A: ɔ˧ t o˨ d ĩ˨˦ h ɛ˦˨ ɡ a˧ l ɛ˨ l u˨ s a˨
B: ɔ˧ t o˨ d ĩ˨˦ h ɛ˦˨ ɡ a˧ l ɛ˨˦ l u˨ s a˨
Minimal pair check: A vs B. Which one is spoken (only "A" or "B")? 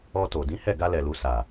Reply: A